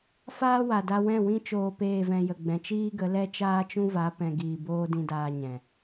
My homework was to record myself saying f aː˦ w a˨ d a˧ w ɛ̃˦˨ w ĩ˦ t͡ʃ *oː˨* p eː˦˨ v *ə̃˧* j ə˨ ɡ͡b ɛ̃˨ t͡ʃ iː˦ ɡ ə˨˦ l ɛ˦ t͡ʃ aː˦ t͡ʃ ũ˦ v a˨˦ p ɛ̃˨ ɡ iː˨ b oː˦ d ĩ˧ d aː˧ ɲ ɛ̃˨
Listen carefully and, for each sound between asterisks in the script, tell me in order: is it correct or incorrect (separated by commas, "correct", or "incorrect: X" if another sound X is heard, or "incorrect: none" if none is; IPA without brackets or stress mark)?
incorrect: oː˧, incorrect: ɛ̃˧